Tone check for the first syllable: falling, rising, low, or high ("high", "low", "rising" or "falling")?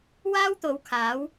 high